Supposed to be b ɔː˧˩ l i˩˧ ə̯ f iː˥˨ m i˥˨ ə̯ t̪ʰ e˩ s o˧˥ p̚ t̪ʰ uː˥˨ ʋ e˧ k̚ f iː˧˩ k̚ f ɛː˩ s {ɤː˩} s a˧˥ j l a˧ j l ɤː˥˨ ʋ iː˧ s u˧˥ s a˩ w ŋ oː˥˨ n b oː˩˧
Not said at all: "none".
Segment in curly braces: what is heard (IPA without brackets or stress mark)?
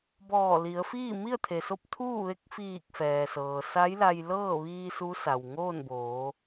ɤː˩